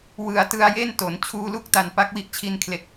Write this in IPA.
w ɯ˨˩ a̯ t ɯ˧ a̯ j e˥˩ n t o˩˦ n t͡ɕʰ uː˧ l u˥˩ k̚ t a˨˩ n p a˦˥ k̚ w i˦˥ ʔ t͡ɕʰ i˧ n kʰ l e˨˩ k̚

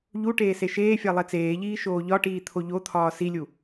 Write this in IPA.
ʎ u ʈ eː s e ʃ eː fʲ æ lˠ e t͡s eː ʎ iː ʃ oː ʎ ɒ ʈ iː t̪ʰ o ʎ o t̪ʰ ɒː s i lʲ u

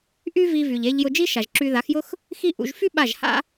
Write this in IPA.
ʔ y˥ v i˧ v y˩ ʎ e˧ ʎ j ʊ˧ d͡ʒ i˥ ʃ a˩ ʒ ǁ y˧ ð a˩˥ x j ʊ˥ x | x i˥ ʔ ṵ˧ ʒ f y˥ ɓ a˥˩ ʒ h a̰˥

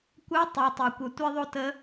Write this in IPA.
kʷ œ˧˥ tˤ e˩˧ tˤ e˩ kʷ œ˩ tʷ e˥ ðˤ o˥ t ə˧˥

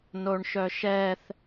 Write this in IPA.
n o ɳ ʃ œ ʃ ɛ θ

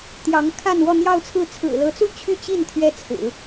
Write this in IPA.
t̪ j ɑ˧˥ ŋ kʰ a˥˧ n w ɔ˥˧ n̪ j ɑ˥˧ ʊ̯ t͡sʰ ɹ̩˥˩ t͡sʰ ɹ̩˨˩ l ɤ˧˥ t͡s u˥˧ t͡ɕʰ y˥˧ t͡ɕ i˥˩ n t̪ʰ ɥ ɛ˥ t͡sʰ ɹ̩˨˩˦

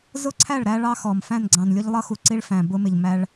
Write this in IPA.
z ʊ˦ ǀʰ æ˦˨ ɭ ɾ æ˦ ɭ ɑ˦ x ɔ˨ m f æ̃˦˨ n ɡ͡ǀ ɑ̃˨ n lʲ ʊ˦ ʎ lˠ ʌ˦ x u˨ ǀ i˦ ɭ f æ̃˨ b ʊ˦ m ɪ˨ ʎ m æ˦ ɭ

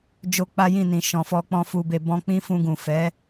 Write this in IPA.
d͡ʒ o˦ k͡p a˦ j ĩ˦˨ n ĩ˨ ʃ ɔ̃˨ f ɔ˧ k͡p ɔ̃˧ f u˧ b e˧ b ɔ̃˦ k͡p ĩ˦ f ũ˧ ɡ ũ˨ f ɛ˨˦

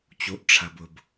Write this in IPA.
t͡ɕ o˩ ʔ ʈ͡ʂʰ ɐ˩ b ʊ˩ b

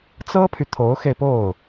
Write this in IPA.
t͡s ɤ˥ pʰ y˨ t̪ʰ o˧˥ ʊ̯ x e˧ ɪ̯ p o˥˩ ʊ̯

